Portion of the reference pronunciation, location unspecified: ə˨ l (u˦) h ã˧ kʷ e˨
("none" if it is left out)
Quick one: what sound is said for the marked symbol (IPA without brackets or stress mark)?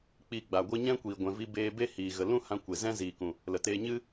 ũ˦